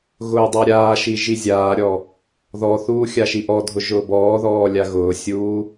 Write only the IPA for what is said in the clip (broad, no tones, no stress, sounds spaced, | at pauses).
ɣ ʊː dˤ a ɾʲ aː ʃ i ʒ i zʲ aː ɾʲ ɔ | ð ɔ θ uː xʲ a ʃ i ʔ ɔ dʱ ʊ ʒ ʊː b ɔː ð ɔː lʲ a ɣ ʊː sʲ uː